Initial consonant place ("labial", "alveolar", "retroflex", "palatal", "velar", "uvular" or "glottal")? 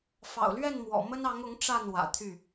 labial